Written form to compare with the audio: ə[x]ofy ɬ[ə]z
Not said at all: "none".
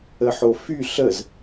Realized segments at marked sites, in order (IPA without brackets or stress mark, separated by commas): ħ, ə